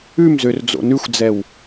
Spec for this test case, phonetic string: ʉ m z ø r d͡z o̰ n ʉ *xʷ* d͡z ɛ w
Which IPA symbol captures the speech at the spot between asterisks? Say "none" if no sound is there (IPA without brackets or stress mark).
xʷ